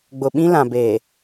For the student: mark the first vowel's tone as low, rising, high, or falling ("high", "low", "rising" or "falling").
low